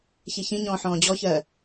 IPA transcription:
ç i ç ĩ ɲ ɔ̃ː ħ ɔ̃ː d͡ʑ ɔ ç ɜː

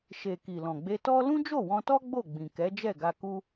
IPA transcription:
ʃ e˨ k i˨ l ɔ̃˨ ɡ͡b e˧ t ɔ˦ l ũ˦ d͡ʒ o˦˨ w ɔ̃˧ t ɔ˦ ɡ͡b o˦˨ ɡ͡b ĩ˨ k ɛ˨˦ d͡ʒ ɛ˦˨ ɡ a˧ k u˦

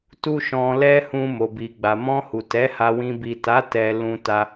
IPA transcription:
t u˦ ʃ ɔ̃˧ l ɛ˦ h ũ˧ m o˨ b i˨ ɡ͡b a˨ m ɔ̃˧ h u˨ t ɛ˨˦ h a˧ w ĩ˧ b i˨ t a˨˦ t ɛ˧ l ũ˧ t a˧

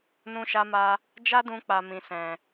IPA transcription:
n ũ˧ ʃ a˧ m a˧ | d͡ʒ a˦ d ũ˧ k͡p a˨ m ĩ˨ s ɛ̃˨

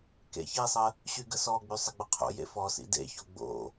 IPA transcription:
k ḛ ç i sˤ ə | ɕ y ɡ ə s ɔ ɡ͡b y sˤ ə ɡ͡b ə qʰ o̰ j ḛ f ɔ s ḭ d ḛ ç o ɡ͡b o̰

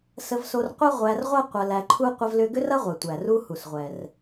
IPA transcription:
s ə˧ v s o˧ r qʷ ɐ˥ ʁʷ æ˧ r ʁʷ ɐ˥ qʷ ɐ˧ l æ˧ ǃʰ u˥ qʷ ə˧ v l ʏ˧ ɡ ʏ˥ r ɐ˥ ʁʷ ɛ˩ tʷ æ˩ r u˧ h u˩ s ʁʷ ɛ˩ r

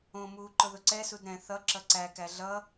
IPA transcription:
õ m uː ǃ ʊ ð ʊ ǀ ɛ s u d ɾ ɛ̃ θ ʌ ǁ ʌ ǀ æ k æ ɮ ʌ

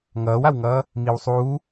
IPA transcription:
ŋ ʌː w a w ŋ ʌː | m i w sˤ uː

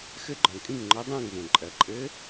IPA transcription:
x ɘ˧˥ ɡ͡ǃ ɔ̃˩ kʼ ĩ˥˨ ŋ ŋ͡ǃ ɔ˧˥ dˤ ɐ̃ː˥˨ ŋ v õ˩ ǃʼ ɜ˩ ǃʼ ɘ˧˥

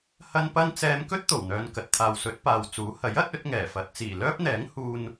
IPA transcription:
h ɐ˥ n p ɐ˥ n t͡s ɛː˧ m k ɵ˥ t̚ t̪ o˨˩ w n̪ œː˨ n k ɐ˨ t̚ t̪ʰ aː˨ w s ɵ˨˥ t̚ p aː˨ w t͡s uː˨˥ h ɐ˨˥ j ɐ˨˥ t̚ ɵ˨˥ t̚ ŋ ɛː˨˩ f ɐ˨ t̚ t͡s iː˨˩ l œː˥ p̚ n̪ ɛː˨˥ ŋ h uː˧ n

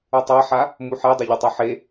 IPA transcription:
u tˤ a ħ a | m u ħ e dˤ e ʎ ɪ tˤ ɤ ħ e

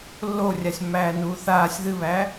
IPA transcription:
lː o rʲ a sʲ mː æː n uː θ aː sʲ ð ɨ β æ

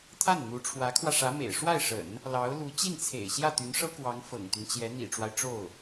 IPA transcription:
t̪ʰ a˥˩ n n̪ u˧˥ ʈ͡ʂʰ w ä˧˥ kʰ w ä˧ ʂ ä˧˥ m ḛ˨˩ ɪ̯ ʂ w a˥˩ ɪ̯ ʂ ə̰˨˩˦ n | l ɑ˧˥ ʊ̯ l u˧˥ t͡ɕ i˥˩ n t͡sʰ ḛ˨˩ ɪ̯ ɕ j ä˥˩ t̪ y˧˥ n ʂ ɤ˥ k w ɑ˧˥ ŋ f ɤ̰˨˩ ŋ t̪ y˦ n t͡ɕ j ɛ˧˥ n̪ ḭ˨˩ ʈ͡ʂ w a˦ ɪ̯ ʈ͡ʂ o˥˩ ʊ̯

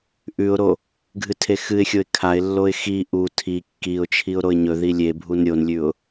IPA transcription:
ʔ ʉ ʊ̯ ɾ o | ɡʱ ɨ tʰ e x ɨ ɪ̯ xʲ o ɪ̯ kʰ a ɪ̯ lː o ɪ̯ x i ʔ u tʰ i kː i ʊ̯ t͡ʃʰ i ʊ̯ ɾ o ɪ̯ ɲ ɵ ð i lʲ e bʱ u n ɾʲ o n lʲ ʉ ʊ̯

